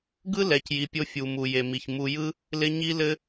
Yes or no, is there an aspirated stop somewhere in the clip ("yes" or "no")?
no